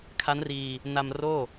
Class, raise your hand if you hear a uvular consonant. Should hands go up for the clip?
no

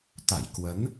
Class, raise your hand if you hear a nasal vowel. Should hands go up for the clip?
no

